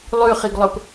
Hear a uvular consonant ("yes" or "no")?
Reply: yes